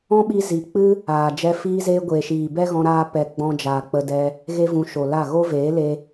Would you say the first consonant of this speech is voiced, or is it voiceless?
voiced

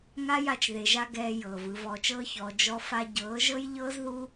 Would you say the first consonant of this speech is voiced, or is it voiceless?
voiced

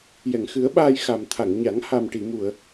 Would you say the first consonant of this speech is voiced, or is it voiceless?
voiced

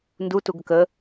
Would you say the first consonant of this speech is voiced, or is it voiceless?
voiced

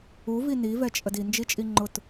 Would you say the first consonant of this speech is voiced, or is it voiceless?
voiced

